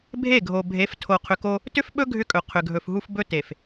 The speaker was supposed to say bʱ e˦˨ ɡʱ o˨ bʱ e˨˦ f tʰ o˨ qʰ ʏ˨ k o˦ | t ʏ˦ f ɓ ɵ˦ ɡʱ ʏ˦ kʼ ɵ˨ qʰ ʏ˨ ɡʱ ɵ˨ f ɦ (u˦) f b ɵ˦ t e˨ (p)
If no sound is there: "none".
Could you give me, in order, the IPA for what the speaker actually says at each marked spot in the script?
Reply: u˦, f

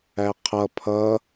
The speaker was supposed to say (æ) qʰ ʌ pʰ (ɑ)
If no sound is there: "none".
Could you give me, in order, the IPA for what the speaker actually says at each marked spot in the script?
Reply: æ, ʌ

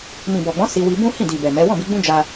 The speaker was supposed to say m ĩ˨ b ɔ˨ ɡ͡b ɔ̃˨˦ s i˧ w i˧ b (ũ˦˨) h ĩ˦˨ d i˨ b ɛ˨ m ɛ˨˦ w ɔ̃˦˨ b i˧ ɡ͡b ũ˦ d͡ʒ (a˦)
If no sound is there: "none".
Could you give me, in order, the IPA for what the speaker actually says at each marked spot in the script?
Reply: ũ˦, a˦

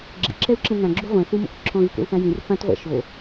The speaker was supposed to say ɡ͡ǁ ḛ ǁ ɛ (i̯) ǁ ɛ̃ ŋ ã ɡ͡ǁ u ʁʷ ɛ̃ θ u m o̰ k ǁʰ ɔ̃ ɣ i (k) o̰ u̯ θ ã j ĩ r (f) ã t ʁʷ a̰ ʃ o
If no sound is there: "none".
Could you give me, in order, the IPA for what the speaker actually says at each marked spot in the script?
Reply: u̯, k, f

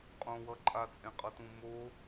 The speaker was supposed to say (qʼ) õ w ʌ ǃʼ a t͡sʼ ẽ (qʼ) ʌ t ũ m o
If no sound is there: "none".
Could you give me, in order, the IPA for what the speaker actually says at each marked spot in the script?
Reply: qʼ, qʼ

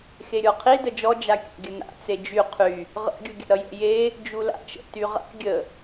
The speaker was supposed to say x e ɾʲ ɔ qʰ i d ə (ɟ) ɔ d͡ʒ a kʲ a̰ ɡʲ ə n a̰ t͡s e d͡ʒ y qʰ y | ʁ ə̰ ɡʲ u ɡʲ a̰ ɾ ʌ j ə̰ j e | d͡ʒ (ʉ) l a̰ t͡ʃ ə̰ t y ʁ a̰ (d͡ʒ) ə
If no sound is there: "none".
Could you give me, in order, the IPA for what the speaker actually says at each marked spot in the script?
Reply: d͡ʒ, u, ɡʲ

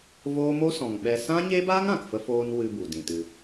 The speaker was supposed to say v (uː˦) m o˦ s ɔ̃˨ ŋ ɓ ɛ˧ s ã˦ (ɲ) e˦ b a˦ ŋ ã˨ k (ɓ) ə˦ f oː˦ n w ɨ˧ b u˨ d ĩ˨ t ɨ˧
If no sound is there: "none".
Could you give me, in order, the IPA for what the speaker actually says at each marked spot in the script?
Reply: oː˦, ɲ, f

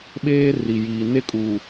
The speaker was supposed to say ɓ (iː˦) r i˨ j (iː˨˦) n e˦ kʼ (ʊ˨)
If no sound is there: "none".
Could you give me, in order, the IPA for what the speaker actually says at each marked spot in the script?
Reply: eː˦, iː˨, u˨

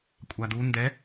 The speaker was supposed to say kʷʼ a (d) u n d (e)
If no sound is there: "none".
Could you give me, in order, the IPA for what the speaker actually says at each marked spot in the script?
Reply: d, ɛ

